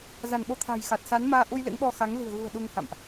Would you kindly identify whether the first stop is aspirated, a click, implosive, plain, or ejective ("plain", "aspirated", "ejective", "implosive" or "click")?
implosive